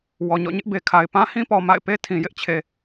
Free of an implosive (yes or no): yes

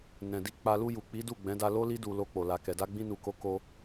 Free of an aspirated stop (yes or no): yes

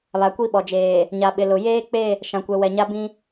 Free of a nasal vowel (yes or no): no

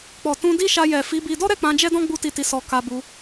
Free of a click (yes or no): yes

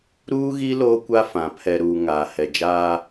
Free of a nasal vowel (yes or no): no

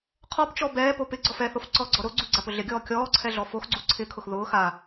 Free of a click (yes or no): no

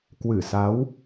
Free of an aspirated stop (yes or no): yes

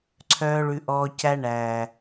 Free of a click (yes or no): no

